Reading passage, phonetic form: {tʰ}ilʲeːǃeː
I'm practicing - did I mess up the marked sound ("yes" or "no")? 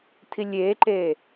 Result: no